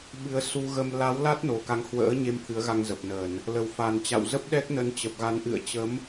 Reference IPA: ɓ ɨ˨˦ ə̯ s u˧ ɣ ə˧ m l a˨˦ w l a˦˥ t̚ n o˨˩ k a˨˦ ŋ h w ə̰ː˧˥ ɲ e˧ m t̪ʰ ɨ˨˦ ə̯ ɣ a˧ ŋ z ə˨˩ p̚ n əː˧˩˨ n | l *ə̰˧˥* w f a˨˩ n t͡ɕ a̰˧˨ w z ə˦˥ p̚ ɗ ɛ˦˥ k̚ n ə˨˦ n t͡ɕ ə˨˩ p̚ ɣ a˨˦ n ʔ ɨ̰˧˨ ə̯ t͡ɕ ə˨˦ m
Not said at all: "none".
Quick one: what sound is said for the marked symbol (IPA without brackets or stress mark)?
ə˨˩